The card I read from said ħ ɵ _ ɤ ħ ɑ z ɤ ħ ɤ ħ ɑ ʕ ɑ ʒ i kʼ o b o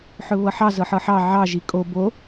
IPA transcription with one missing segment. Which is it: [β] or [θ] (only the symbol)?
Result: β